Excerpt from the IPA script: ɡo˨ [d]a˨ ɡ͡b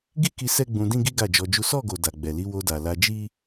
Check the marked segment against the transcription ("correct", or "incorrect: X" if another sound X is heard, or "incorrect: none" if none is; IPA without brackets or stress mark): correct